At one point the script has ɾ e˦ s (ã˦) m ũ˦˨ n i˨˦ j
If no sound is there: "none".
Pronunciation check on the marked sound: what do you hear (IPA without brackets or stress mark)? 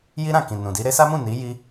a˦